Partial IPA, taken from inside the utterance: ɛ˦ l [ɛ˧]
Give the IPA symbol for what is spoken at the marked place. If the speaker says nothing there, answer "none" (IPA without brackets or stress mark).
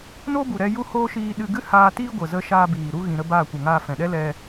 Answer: ɛ˧